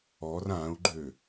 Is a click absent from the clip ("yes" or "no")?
no